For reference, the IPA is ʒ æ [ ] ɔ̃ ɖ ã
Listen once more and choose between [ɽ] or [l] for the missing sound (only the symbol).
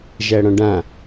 ɽ